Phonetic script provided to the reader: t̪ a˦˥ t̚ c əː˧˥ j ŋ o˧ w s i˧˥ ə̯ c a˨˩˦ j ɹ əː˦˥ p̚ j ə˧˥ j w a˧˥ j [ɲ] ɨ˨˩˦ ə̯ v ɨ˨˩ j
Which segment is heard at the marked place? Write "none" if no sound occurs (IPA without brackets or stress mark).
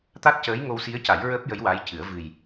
c